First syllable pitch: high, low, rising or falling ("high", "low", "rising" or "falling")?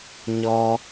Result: high